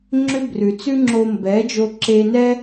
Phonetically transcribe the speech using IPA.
ŋ͡ǁʏ˥ brʉ˩t͡sʉ˥ŋ͡ǁo˧ mbɛ˩˥d͡ʒo˧ǁe˧nɛ˥

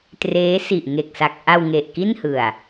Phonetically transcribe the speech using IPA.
treː˦˥si˨˩ʔŋe˨˩k̚sa˨˩k̚ ʔa˧w ŋe˨˩ʔki˥˩nhɯ˨˩a̯

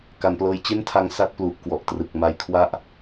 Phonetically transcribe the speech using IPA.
ka˩˦nplɤː˧j t͡ɕe˥˩ntʰa˧ŋ sa˥˩t̚plu˨˩ʔ kwɔ˨˩ʔtrɯ˨˩k̚ ma˧jkʰwa˥˩ʔ

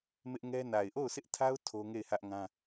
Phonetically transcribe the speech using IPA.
mɪ˦ʔŋɛ˦ na˨ɪ̯ʔo˦˨ʊ̯sʰɪ˦ʔtʰa˦ʊ̯ tʰo˦ ŋe˦˨ɪ̯hä˦ʔŋã˦

